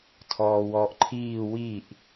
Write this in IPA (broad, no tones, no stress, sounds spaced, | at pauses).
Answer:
tʰ ɔː w ɔː ʔ ǃʰ iː w i ʔ